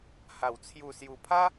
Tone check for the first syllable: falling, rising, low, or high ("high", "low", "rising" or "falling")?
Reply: low